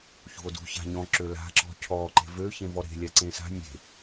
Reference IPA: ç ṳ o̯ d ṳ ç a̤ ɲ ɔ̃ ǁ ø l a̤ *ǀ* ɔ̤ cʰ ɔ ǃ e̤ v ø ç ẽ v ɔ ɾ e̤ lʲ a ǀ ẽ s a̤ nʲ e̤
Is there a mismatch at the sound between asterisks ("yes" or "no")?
yes